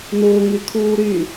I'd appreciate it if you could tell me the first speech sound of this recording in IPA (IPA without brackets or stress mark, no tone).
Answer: n